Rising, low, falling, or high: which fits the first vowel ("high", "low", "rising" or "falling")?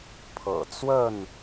low